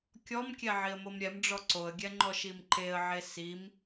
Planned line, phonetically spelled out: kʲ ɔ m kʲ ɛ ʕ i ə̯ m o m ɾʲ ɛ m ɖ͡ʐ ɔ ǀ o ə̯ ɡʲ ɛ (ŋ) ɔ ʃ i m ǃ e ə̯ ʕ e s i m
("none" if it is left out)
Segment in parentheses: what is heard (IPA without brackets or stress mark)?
ŋ͡ǃ